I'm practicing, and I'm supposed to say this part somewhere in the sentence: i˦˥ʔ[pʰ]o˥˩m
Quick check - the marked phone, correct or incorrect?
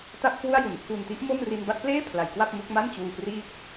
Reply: incorrect